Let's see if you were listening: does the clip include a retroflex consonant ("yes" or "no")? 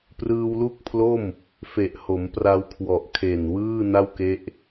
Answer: no